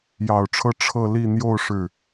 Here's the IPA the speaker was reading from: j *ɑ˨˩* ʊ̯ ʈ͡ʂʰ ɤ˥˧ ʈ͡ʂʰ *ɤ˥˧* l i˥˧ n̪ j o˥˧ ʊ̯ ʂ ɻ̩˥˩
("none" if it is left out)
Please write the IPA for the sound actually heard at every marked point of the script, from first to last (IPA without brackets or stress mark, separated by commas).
ɑ˨˩, ɤ˥˧